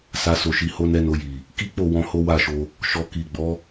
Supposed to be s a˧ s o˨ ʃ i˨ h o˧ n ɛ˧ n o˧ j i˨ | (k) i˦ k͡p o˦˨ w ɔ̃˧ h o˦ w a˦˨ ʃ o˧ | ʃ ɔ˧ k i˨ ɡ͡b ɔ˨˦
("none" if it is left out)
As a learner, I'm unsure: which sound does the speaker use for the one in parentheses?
k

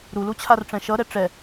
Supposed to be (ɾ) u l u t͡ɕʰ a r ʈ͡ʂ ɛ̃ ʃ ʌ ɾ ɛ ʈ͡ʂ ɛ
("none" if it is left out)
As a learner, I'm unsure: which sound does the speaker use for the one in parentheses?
ɾ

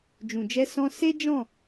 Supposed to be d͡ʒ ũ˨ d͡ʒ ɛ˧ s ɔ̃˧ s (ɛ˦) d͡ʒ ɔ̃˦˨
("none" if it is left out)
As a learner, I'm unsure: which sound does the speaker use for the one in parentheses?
e˦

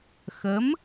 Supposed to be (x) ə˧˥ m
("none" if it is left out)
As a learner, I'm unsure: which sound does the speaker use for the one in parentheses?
x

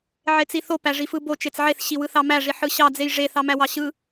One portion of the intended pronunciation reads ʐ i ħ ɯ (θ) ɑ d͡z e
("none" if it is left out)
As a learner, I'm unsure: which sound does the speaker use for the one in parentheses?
ɕ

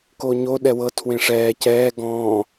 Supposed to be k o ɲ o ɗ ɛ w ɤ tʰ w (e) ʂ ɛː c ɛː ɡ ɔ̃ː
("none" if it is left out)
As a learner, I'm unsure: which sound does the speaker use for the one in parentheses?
ẽ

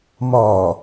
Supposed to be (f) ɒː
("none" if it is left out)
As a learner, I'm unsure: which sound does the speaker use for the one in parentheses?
m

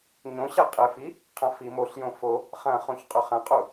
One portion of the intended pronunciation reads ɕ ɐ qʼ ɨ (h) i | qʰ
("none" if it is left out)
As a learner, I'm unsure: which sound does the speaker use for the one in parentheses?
f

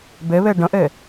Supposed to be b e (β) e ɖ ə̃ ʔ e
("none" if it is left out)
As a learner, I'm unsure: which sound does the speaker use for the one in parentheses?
β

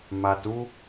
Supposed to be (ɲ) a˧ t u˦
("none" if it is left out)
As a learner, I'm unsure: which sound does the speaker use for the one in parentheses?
m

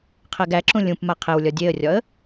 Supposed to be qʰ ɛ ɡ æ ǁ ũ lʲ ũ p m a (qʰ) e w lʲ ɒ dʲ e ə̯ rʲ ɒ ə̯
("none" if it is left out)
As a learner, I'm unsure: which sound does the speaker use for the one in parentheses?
qʰ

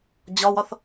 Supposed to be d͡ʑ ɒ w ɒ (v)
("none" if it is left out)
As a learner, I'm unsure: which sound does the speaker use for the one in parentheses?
θ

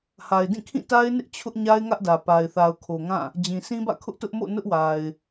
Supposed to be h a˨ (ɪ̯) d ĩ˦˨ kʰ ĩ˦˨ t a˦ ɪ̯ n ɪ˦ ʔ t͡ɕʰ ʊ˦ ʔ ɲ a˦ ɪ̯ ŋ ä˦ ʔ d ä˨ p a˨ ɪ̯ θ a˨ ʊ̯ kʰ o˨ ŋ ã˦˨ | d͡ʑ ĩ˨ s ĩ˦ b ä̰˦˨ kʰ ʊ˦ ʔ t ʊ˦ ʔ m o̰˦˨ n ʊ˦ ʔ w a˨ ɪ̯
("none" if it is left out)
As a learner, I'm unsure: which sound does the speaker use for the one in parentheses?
ɪ̯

